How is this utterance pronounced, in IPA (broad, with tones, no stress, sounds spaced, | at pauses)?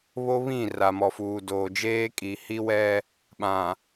β o˦ β ĩ˦˨ r a˨ m ɔ˨ f uː˨ d oː˨ d͡ʒ eː˦ kʼ i˨ h i˦ w ɛ˦ | ɓ ã˨